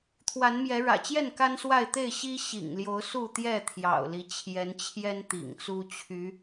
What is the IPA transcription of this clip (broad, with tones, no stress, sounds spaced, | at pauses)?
t̪ʰ w a˨˦ n m j ɛ˨˦ ɻ ä̰˨˩ t͡ɕ j ɛ˥˨ n k a˦ n s w a˥˨ ɪ̯ t̪ e˥˨ ɪ̯ ɕ i˦ ɕ ḭ˨˩ ŋ l j o˨˦ ʊ̯ s u˥˨ t̪ j ɛ˥˨ t̪ʰ j ɑ̰˨˩ ʊ̯ l i˨˦ t͡ɕʰ j ɛ˨˦ n t͡ɕʰ j ɛ˦ n t̪ ḭ˨˩ ŋ t͡s u˦ t͡ɕʰ y˨˦